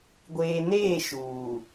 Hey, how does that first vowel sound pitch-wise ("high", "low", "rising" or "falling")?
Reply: low